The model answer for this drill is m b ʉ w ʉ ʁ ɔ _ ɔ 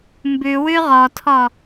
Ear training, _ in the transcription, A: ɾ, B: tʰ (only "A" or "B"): B